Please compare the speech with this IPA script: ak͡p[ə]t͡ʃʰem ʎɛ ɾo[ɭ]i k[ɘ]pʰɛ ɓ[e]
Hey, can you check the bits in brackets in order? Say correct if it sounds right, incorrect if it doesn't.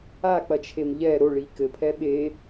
incorrect: ɐ, correct, correct, correct

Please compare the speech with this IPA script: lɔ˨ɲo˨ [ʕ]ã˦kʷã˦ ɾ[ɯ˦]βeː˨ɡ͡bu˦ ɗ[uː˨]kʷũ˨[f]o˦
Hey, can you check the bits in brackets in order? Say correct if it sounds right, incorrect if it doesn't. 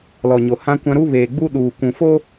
incorrect: h, incorrect: u˦, correct, correct

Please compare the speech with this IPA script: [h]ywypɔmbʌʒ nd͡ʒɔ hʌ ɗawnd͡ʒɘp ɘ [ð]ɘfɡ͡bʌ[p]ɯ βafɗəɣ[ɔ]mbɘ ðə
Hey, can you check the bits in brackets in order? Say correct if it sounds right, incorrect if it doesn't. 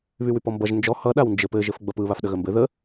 incorrect: β, incorrect: ʒ, correct, incorrect: ə

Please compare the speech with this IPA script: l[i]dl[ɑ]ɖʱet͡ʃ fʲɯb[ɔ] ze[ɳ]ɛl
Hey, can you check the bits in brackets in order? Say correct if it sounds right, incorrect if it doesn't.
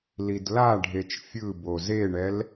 correct, incorrect: a, incorrect: o, correct

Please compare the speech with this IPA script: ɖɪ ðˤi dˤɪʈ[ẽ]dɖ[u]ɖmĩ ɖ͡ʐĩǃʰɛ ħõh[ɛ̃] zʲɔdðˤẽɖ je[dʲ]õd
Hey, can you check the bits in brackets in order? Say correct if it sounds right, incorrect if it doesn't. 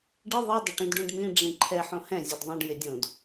incorrect: ĩ, incorrect: ũ, correct, correct

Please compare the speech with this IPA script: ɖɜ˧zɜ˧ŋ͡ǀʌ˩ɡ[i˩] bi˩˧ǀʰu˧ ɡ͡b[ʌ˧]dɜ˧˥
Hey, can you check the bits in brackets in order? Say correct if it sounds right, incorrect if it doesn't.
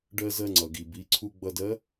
correct, correct

